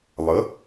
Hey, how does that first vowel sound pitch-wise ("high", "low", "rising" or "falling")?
rising